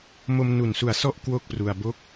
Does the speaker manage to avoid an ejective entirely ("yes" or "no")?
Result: yes